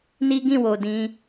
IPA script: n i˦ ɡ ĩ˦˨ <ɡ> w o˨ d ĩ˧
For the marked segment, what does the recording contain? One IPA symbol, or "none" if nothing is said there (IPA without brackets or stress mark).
none